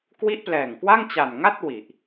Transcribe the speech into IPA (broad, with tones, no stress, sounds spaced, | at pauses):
k w i˦˥ ʔ p l ɛː˨˩ ŋ k w a˥˩ ŋ t͡ɕ a˨˩ n ŋ a˥˩ t̚ w i˨˩ ʔ